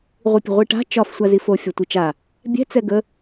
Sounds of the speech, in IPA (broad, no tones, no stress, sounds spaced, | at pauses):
ʁʷ i pʲ ə̤ ʁʷ i ʈ a̤ t͡ʃ ɒ f sʷ a z i f o fʲ ɒ tʷ i t͡ʃ a | bʲ ɛ̤ t͡s ɛ ɡ ə